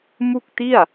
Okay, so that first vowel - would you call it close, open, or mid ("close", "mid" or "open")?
close